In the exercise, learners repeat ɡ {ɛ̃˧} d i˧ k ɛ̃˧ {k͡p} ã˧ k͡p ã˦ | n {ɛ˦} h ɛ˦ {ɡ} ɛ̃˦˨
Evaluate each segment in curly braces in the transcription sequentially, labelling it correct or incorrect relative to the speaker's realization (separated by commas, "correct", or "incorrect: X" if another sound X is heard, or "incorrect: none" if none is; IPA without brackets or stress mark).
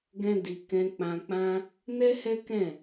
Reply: incorrect: ɛ̃˦, correct, correct, incorrect: k